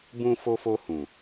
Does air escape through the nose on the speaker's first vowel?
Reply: yes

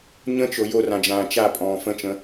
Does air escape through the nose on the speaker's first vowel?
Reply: yes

